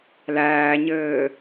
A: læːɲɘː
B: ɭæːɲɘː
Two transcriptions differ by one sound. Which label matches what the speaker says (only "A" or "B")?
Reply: A